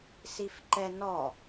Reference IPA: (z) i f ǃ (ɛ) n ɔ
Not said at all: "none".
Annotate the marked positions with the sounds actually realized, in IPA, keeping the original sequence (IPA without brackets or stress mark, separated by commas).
s, ɛ